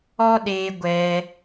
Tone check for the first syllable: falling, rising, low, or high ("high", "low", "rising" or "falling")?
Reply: high